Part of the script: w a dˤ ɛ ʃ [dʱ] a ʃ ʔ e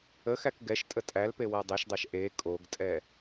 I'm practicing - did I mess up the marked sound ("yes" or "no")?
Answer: yes